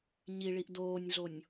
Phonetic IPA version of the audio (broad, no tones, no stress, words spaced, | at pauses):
ɲiɭiʔ doːnʲɮonʲ